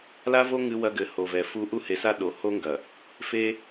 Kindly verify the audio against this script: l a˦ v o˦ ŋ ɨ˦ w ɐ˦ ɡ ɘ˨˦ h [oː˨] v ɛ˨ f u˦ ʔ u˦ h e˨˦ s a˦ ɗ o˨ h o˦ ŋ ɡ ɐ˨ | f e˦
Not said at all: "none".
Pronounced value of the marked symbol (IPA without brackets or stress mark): o˨